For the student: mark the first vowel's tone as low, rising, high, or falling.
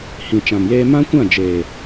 low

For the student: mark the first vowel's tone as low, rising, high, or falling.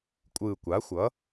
low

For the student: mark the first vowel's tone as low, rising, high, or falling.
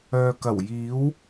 low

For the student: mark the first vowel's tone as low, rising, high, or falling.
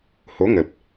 rising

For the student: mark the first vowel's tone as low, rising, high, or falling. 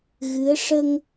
rising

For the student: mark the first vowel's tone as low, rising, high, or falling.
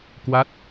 falling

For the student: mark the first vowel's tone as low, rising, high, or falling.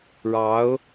rising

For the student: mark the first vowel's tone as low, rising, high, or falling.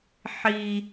high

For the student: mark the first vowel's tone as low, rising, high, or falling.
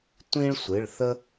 high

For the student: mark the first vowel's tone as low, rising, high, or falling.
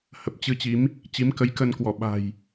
low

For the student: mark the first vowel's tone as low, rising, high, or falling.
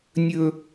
high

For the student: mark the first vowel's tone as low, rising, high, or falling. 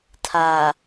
low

